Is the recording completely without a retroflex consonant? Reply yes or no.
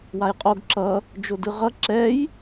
yes